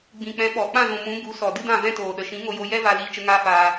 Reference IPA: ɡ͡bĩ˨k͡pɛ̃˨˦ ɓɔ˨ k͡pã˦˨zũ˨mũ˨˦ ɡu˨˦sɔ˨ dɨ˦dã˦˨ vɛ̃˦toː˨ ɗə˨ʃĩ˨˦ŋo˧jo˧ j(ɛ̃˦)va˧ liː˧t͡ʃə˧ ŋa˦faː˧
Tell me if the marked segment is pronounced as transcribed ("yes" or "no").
no